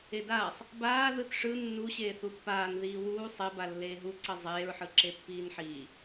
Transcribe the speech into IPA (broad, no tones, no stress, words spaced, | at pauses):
edaːsˤ | baː ðɯtʂɯ nːuɕeː θupːaːn ðiːwuː sˤeba lːeːɦu ǀʌzˤeːɹħɯ ǁepːiːnħiː